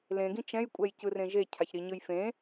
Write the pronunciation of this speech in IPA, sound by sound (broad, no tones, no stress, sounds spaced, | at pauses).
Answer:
l ẽ ɡ ĩ t͡ʃ ɛ̃ j kʷʼ ɛ j c ɯ r ẽ ʒ e cʰ a ç ɾ i ɲ ɯ j f ẽ